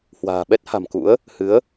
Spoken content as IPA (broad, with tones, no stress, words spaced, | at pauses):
hwa̤ː˨˩ɓɛ˦˥t̚ha̤˨˩m kṵ˧˥ə̯ | hɨ˨˦ə̯